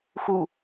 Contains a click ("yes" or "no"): no